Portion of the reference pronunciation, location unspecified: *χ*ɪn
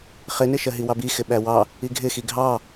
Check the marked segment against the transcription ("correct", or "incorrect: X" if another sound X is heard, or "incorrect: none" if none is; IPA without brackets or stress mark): correct